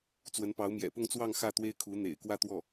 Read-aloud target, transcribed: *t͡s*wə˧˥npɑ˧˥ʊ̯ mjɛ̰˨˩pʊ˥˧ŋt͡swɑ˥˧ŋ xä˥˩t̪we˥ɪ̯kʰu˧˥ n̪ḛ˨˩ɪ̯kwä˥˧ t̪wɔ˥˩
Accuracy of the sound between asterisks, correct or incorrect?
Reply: correct